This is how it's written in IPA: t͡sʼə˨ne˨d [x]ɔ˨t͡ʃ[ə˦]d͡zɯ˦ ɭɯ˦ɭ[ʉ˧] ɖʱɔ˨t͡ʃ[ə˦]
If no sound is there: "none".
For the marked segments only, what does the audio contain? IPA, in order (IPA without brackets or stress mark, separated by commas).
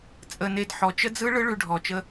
ħ, ə˦, ʉ˧, ə˦